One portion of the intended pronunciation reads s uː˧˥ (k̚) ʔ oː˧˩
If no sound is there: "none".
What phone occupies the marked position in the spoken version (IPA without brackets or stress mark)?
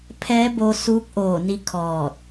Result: k̚